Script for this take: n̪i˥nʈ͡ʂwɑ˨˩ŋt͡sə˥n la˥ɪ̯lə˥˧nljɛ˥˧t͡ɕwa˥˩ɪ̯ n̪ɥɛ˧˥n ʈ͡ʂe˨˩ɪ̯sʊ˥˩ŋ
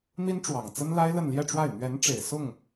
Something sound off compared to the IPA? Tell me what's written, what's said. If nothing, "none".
t͡ɕ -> ʈ͡ʂ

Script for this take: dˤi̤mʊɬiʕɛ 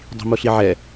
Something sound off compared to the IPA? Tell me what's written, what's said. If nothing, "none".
none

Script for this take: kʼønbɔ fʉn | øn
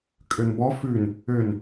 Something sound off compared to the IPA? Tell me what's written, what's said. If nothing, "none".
none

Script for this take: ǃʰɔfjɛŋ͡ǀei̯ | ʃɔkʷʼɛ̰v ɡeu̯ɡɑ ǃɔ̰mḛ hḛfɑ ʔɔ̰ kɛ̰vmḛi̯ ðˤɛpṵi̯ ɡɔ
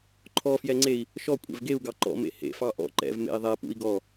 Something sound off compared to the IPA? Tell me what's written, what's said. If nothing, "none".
k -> ǃ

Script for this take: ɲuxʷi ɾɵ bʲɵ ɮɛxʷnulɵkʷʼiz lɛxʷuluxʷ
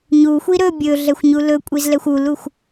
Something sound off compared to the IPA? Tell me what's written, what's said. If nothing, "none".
n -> ɲ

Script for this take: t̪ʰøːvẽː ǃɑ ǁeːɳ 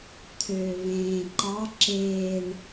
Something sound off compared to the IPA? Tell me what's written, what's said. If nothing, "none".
none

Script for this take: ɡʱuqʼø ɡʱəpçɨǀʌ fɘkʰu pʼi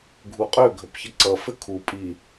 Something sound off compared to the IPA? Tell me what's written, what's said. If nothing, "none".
ɨ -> ə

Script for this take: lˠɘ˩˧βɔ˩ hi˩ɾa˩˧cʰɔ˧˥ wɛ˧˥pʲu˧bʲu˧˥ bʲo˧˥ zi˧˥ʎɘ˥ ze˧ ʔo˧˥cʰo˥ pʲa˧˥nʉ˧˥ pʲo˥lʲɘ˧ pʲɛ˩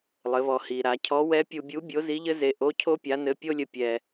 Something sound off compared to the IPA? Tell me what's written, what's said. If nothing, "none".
ʉ˧˥ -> ɘ˧˥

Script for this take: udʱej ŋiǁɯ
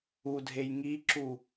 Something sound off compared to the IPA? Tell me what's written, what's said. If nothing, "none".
ɯ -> u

